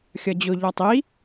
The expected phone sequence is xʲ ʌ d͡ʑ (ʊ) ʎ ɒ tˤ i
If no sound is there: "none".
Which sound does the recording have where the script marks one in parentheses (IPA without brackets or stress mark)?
ʊ